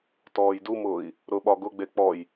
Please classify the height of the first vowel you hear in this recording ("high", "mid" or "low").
mid